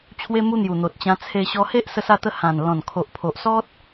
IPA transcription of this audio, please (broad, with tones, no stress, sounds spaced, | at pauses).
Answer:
t͡ɕʰ w e˧ m u˧ n̪ j u˨˩ n̪ o˨ t̚ t͡ɕ ã˧ t͡sʰ e˧ ɕ ɔ˧ h e˦ ʔ s ə˧ s a˧ t̪ ə˧ h ã˨˩ n l ɔ̃˨˩ n kʰ o˨ ʔ pʰ o˨ ʔ s ɔ˦ t̚